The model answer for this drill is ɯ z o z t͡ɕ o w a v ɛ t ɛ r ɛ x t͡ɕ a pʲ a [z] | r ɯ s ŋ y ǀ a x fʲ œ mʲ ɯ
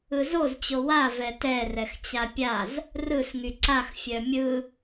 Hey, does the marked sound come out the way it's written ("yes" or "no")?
yes